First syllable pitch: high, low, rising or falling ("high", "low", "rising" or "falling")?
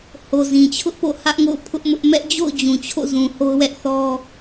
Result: low